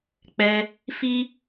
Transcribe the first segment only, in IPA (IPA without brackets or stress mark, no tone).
k͡p